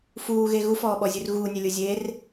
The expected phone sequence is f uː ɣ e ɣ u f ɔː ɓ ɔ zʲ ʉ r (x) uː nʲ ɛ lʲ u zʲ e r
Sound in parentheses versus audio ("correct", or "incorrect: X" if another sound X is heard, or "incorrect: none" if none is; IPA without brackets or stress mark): incorrect: ɣ